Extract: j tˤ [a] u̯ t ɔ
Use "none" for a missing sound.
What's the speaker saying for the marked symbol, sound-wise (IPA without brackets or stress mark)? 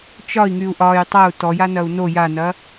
ʌ